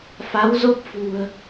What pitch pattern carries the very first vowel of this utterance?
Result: rising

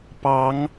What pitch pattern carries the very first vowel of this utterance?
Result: rising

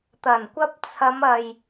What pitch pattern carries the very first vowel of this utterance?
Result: low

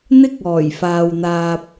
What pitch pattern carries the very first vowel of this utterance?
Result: high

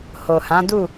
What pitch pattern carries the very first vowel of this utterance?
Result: low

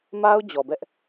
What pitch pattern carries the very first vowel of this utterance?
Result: high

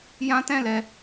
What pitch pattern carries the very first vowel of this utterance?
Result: high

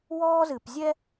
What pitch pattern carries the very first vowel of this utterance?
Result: high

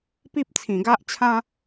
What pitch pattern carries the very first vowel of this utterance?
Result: high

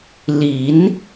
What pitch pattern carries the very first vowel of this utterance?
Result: rising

